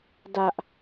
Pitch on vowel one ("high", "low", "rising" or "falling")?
high